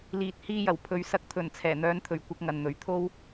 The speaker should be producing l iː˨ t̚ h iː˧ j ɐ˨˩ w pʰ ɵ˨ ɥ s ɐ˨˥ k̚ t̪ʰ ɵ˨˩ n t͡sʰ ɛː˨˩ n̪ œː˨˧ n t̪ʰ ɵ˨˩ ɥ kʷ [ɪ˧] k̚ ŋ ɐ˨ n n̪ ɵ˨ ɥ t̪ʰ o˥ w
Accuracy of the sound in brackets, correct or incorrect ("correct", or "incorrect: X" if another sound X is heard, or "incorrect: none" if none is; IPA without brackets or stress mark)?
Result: correct